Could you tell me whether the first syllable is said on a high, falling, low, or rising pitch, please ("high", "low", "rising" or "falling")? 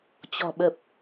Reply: low